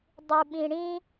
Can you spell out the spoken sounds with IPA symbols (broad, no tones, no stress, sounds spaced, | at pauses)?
dˤ u ɓ ĩ ɽ ĩ